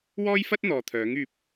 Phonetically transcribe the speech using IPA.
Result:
w ɔː˥ j f ɐ˥ t̚ n̪ ɔː˨ t̪ʰ œː˨˥ ŋ yː˧ p̚

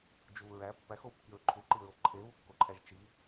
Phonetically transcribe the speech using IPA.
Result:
d͡ʒ u ɹ æ pː æ x o w kː i ɹ ǃʰ u ǃ i ɹ o ǃʰ e β u kː o ǃʰ æ ʒ t͡ʃ i

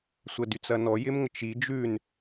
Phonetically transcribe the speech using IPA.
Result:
sʷ ə d y t͡s ɐ n ɔ j ɪ m ŋ ə t͡ʃ i d͡ʒ ʉ n

